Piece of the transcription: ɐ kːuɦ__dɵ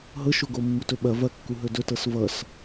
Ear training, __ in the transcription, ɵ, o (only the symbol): ɵ